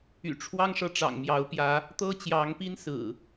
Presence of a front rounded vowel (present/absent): present